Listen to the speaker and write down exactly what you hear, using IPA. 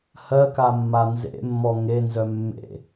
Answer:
h ɜ k a mː a n z ḛ mː ɔ ŋ e n z œ mː ḛ

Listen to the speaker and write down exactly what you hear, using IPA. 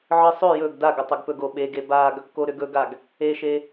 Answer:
ʕ ɨ sˤ ʏ j ɵ ɡ d a ɡ ə tˤ ʏ ɡ p ɵ ɡ o ɓ e ɡ e b a ɡ | k o ɾ ʏ ɡ ɵ ɡ a ɡ | e ʃ e

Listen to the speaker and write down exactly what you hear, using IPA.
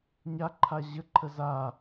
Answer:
ɲ a ǃʰ a ʑ ə ǃʰ ə z a

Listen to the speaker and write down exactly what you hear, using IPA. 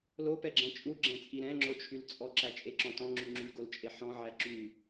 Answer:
l o p ɛ ɡ͡ǁ ɛ̃ t͡ʃʼ u ɡ͡ǁ ɛ̃ t͡sʼ i ɾ ɛ̃ ŋ͡ǁ o t͡ʃʰ y l t͡sʼ ɔ ǁ æ t͡ʃʼ e ǁ ɔ̃ t ɔ̃ ŋ͡ǁ y ŋ͡ǁ y ɡ o l t͡ʃʼ e ħ ɔ̃ ʕ æ ǁ y

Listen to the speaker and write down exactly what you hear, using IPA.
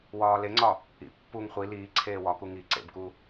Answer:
w ɒː l e ŋ͡ǀ ɒ | ḭ pː u ŋ χʷ i l iː ǀʰ eː w ɒ k u ŋ i ǀ ḛ b k u

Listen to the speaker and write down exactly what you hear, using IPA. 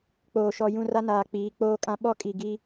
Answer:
k͡p oː˨ ʃ ɔ˨ j ũ˦˨ r a˦ n aː˨ k͡p iː˨˦ k͡p oː˦ kʼ ã˦ ɓ ɔ˦ kʼ i˨ ɡ i˦

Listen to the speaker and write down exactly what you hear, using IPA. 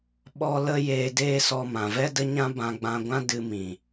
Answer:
ɓ ɔ˦ l ə˦ j eː˧ d eː˦ s ɔ˧ m ã˨ v ɛ˦ d ə˦ ɲ ã˦ b ã˧ ɡ͡b ã˧ ɡʷ ã˦ d ɨ˧ m ĩ˨

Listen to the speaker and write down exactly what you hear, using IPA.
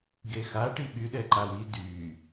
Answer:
ɡ e x a ʈ i ɓ y ɗ ɛ ǃ a w i d y

